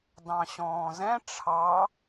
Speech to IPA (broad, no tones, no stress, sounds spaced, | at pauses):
d ɑ̃ ɕ ɔ̃ː z ɛ̃ ʈ͡ʂʰ ɑ